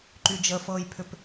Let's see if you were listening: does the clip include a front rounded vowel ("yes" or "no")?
yes